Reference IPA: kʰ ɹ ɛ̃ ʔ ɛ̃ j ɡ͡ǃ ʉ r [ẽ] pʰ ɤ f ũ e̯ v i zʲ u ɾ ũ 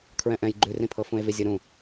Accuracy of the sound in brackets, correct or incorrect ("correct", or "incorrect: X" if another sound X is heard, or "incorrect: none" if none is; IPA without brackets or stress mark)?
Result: incorrect: ĩ